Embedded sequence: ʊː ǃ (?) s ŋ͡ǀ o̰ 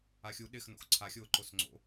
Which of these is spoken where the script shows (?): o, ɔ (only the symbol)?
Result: o